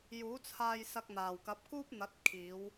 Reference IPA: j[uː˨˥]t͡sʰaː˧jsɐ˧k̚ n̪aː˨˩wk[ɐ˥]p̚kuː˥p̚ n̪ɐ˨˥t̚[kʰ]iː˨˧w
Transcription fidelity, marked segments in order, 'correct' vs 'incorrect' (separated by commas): correct, incorrect, correct